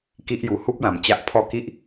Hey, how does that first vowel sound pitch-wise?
high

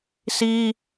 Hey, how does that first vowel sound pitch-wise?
high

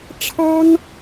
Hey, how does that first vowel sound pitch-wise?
high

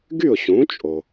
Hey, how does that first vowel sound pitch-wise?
falling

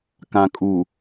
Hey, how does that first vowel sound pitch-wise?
low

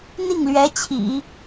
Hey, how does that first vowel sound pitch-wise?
falling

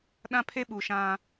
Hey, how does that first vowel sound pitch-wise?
high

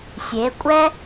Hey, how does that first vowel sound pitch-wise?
rising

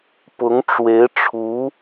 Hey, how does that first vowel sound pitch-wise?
rising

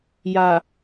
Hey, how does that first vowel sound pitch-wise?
low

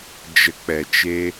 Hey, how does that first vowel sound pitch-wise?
low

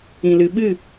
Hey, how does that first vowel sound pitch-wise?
low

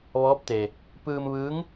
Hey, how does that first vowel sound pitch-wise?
rising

